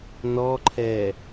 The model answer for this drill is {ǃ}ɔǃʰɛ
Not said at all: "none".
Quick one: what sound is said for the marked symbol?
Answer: n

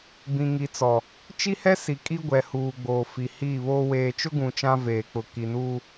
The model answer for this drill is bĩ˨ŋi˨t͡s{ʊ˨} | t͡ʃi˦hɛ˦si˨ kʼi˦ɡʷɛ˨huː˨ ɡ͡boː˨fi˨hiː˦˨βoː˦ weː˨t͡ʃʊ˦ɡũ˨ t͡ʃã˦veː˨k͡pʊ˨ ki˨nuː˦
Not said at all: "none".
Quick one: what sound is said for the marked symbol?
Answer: ɔ˨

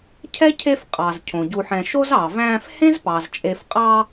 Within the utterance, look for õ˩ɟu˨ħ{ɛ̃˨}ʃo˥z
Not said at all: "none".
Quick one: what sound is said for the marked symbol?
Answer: ɛ̃˨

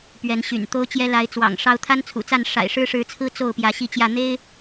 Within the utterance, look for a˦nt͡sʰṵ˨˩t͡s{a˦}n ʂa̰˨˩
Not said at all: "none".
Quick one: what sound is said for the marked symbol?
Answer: a˥˨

